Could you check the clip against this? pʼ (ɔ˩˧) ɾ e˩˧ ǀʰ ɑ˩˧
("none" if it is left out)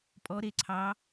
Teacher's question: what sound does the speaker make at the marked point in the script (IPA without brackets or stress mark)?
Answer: ɔ˩˧